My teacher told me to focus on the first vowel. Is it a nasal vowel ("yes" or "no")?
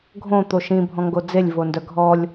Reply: yes